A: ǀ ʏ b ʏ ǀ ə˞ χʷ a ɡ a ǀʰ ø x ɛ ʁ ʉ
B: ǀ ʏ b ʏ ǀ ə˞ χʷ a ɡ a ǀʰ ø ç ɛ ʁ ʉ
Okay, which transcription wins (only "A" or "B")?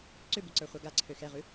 A